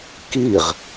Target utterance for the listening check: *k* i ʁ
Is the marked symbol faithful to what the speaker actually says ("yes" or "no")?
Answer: yes